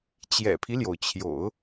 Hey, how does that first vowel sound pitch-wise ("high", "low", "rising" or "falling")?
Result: low